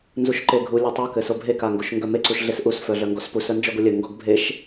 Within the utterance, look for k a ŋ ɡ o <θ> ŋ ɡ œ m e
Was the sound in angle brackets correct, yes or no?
no